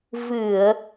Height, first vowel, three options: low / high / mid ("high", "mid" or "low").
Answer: high